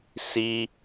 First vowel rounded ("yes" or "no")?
no